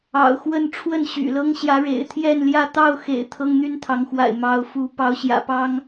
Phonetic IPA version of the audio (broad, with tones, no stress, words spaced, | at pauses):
ɑ̰˨˩ʊ̯xwə˥˨n ʈ͡ʂʰwə˥˨nɕy̰˨˩lɤ˦ŋ ɕjä˨˦ɻḛ˨˩ɪ̯t̪ʰjɛ˥˨nljä˥˨ t̪ɑ˥˨ʊ̯xḛ˨˩ɪ̯ t̪ʰɤ˦ŋn̪y˦nt̪ʰɑ˨˦ŋxwa̰˨˩ɪ̯ mɑ˨˦ʊ̯fu˨˦ pɑ˨˦ʊ̯ɕjä̰˨˩pɑ˦ŋ